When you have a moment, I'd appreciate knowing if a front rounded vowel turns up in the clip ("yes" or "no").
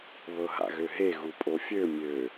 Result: yes